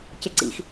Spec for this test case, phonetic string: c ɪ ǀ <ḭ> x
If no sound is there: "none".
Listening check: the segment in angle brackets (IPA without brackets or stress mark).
ḭ